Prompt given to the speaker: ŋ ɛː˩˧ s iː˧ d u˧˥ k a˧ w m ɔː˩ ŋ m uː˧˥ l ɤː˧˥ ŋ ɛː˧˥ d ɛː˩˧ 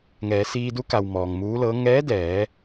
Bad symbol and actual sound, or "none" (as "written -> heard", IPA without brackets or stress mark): a˧ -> a˩